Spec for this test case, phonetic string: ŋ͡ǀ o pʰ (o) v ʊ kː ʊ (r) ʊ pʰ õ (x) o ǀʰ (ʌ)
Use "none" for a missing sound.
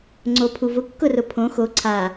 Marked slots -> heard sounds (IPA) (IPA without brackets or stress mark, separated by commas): u, r, x, a